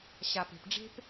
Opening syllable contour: low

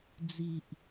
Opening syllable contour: low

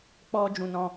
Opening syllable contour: high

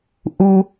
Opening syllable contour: low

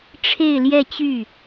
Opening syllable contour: falling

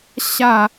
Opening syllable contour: falling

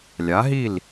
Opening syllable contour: rising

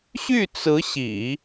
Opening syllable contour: falling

